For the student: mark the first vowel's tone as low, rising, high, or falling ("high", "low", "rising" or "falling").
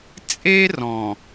high